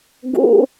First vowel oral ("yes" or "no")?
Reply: yes